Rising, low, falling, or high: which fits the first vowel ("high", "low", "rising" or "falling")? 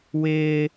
high